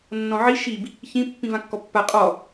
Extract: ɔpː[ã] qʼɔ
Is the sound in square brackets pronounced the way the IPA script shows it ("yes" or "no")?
no